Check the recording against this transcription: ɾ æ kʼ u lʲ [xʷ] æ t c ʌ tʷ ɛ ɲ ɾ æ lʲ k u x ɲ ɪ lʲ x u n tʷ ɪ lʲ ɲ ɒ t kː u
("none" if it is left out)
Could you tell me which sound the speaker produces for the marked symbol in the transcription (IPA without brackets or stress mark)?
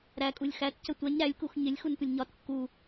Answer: x